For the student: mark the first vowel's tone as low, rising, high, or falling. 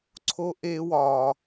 high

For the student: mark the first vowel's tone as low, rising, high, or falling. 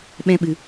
high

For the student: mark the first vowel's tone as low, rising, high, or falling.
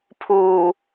low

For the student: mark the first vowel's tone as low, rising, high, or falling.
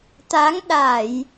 rising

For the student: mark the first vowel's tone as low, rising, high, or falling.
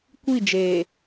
falling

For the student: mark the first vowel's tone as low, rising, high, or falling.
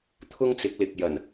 high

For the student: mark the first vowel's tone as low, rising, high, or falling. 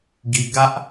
low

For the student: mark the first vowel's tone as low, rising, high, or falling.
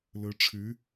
rising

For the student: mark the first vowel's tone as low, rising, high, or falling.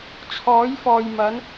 rising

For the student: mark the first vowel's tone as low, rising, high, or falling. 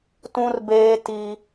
high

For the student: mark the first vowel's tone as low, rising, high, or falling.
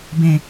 low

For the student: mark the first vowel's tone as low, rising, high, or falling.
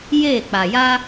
falling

